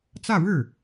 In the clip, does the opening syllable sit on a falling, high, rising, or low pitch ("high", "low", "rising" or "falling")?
falling